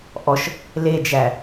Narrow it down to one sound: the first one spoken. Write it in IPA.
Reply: ʔ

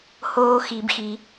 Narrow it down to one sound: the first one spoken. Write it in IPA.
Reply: h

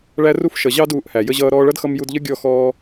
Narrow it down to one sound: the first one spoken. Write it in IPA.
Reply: ɭ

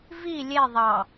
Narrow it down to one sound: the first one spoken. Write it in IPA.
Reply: v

